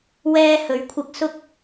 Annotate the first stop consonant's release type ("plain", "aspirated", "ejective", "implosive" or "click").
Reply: aspirated